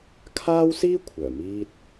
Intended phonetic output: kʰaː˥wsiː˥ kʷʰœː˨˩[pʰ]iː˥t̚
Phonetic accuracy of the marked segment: incorrect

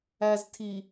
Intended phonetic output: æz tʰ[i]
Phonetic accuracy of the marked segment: correct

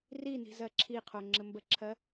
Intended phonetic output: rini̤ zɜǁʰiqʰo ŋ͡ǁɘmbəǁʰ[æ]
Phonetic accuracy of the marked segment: incorrect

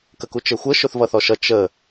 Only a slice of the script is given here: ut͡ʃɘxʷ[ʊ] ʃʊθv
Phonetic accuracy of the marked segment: incorrect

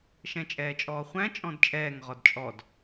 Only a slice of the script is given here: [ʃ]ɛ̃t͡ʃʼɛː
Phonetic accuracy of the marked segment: correct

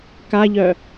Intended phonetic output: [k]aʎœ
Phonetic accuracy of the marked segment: correct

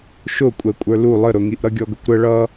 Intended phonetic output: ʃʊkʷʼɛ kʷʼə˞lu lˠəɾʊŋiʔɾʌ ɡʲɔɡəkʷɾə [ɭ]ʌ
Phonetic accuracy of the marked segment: correct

